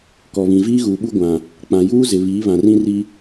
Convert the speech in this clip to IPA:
kɔ˨βĩ˨ viː˦ɣuː˨ɓu˦ ɡʷã˨ | k͡pã˨juː˦zɪ˨ βiː˨˦βã˨rĩ˦ri˦

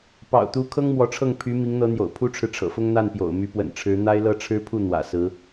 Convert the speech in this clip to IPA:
pɑ̰˨˩ʊ̯t̪u˧˥ kʰɤ˥ŋ mwɔ˧˥ʈ͡ʂʰɤ˥˩ŋ pʰy˧˥ mi˧˥ŋn̪ɤ˧˥n̪jo̰˨˩ʊ̯ pʰu˥ʈ͡ʂʰɻ̩˨ʈ͡ʂʰɤ̰˨˩fʊ˥ŋ n̪a˥˩npjo̰˨˩ʊ̯ my˧˥pwə̰˨˩nʈ͡ʂʰɻ̩˧˥ n̪a˥ɪ̯lɤ˥ʈ͡ʂʰɻ̩˥ pʰu˥˩ n̪wä̰˨˩sɹ̩˧˥

